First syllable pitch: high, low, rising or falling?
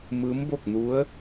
rising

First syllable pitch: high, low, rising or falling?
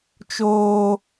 high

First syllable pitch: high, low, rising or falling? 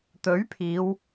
rising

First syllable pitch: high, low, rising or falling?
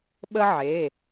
high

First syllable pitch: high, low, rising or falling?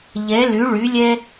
rising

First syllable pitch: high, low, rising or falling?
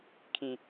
high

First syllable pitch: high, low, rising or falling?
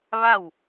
falling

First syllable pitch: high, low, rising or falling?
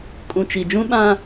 low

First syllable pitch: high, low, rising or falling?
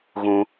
high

